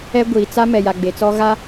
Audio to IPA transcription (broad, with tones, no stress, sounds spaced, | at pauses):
ɛ˦ ɡʷ iː˨ t͡s a˦ m ɛ˨ j a˨ ɡ͡b e˨ t͡s ɔ˦ ɣ a˦